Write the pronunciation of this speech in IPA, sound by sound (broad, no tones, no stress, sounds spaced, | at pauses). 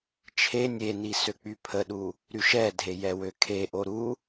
t͡ʃʰ e nʲ e n i s ø k͡p y pʰ ə ɗ u | ɾ y ʃ ɛ dʱ e j ɛ w ø kʰ e ʔ o ɾ u